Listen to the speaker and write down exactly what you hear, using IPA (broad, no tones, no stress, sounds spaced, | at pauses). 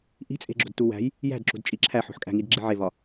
ʔ i̤ t͡sʼ e̤ ɡ͡ǁ o̤ d t u w æ̤ j | j æ̤ d ǁ ṳ d t͡ʃʼ i ǁʰ æ ħ o̤ ħ kʼ æ̤ ŋ i d ɡ͡ǁ i ʕ e v ɒ